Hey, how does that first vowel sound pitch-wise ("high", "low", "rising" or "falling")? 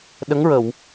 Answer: rising